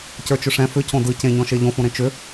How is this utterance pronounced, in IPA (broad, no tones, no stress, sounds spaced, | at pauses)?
c ə˞ t͡ʃ ʏ ʂ ɛ̃ f ʏ c õ d ɯ c ẽ ɲ ɔ̃ ʃ e ʎ õ f õ ɾ ẽ t͡ʃ ʏ